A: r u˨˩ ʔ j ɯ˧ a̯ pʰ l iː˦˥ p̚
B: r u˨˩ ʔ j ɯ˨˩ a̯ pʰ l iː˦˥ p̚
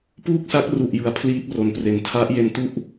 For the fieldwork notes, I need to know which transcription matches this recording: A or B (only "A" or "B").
B